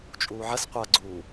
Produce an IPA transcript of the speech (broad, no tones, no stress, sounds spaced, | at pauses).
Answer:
t͡ʃʼ uː ʕ ɐ s qʷ a ɡ͡ǀ u